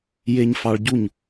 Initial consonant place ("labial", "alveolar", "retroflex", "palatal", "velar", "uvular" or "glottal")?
palatal